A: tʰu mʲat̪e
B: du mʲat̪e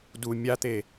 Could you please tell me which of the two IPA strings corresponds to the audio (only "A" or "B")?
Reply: B